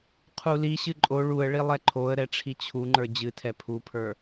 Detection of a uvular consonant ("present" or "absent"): present